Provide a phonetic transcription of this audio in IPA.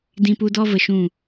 dĩ˧pu˧dɔ˦ və˧ʃũ˦˨

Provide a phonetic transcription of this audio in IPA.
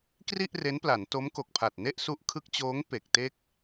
kri˥˩ʔre˦˥npla˩˦n to˦˥mko˨˩k̚pʰa˨˩t̚ ne˥˩ʔsu˦˥ʔkʰɯ˦˥k̚t͡ɕoː˦˥ŋ pe˨˩k̚te˥˩k̚

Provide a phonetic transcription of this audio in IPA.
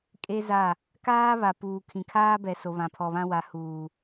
kʼe˦ za˦˨ | kaː˦βa˨puː˨ kʰĩ˨kʰaː˦bɛ˨ so˨βã˨pʰɔ˨βã˦ wa˨huː˨

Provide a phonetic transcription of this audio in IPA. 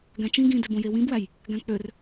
ɡæ̃t͡ʃĩ ɡĩdøbõje wĩbwæj | ɡæ̃k͡pør

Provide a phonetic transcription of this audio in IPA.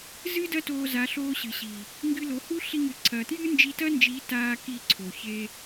zɨ˦ dɐ˦toː˧za˨˦ ɬoː˧ɕɨ˨ ɕi˨ | ŋɡɨ˧lo˨hu˦ ɬi˧ŋɨ˨ǀʰɐː˨tjɨː˦ nd͡ʒi˧tɐ˦nd͡ʒi˨˦ taː˧ ki˧ǀʰo˨ çe˧

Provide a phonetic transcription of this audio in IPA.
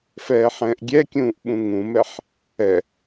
fɛːħɛ̃ːʔɡʲɛkʲũːʔ ɓũŋũmɛħ | ɛ

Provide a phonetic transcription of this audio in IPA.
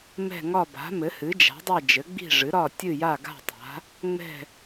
mɛ̤˥˨ŋɒ˥˨ ba̤˩˥ mɘ˩˥hɨ˩˥d͡ʒa̤˩˥dˤɛ˥˨ d͡ʒɘ˩˥ɡ͡bi̤˥˨ ʐɨ˩˥ɾɒ˥˨ tʲɨ˥˨ja˥˨ɡa̤˥˨tˤa̤˩˥ | ŋ͡mɛ̤˥˨

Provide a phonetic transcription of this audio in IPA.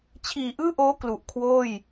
t͡ɕʰiː˨˩ʔɯː˥˩ʔoː˦˥ klu˨˩ʔkʰwoː˥˩j

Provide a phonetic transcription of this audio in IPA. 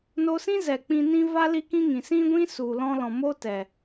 no˧sĩ˦ zɛ˨k͡pĩ˧nĩ˦ va˦ li˦kĩ˦ŋĩ˨ sĩ˦ɡʷĩ˦su˨ lɔ̃˦lɔ̃˨ mo˦tɛ˨

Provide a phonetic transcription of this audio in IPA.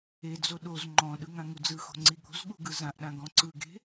ed͡zo ɗoz ŋ͡ǃɔ̃ɗɯŋ ãŋud͡zɯxo̤ ŋ͡ǀiɠo̤zɠu ɡɯzãʔɗã ɡɔ̃ǀɯɡe̤

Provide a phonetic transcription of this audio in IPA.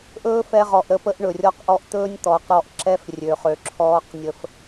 ʔɵː˦fɛ˧ʁɔ˨ʔɾə˧ pə˦ʔɳɵ˨rʲɔ˦qʔɔ˦ʔ t̪ɵː˦nʲ t̪ɔː˨qɾɔ˧ʔ ǁɛ˦frʲø˨χø˨ ǁʰɔː˦qnʲə˧f

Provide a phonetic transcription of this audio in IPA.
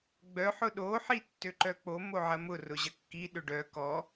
ɡ͡bœ ħʊɗo ħitːøǃœk͡po moʕɐmʊ rʊʑɐkːi ɗʏɖœ kɔ

